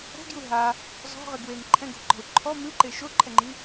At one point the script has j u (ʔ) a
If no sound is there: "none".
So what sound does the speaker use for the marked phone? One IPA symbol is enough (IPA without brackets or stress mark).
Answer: ɦ